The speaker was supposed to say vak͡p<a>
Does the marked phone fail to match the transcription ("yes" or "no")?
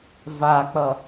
yes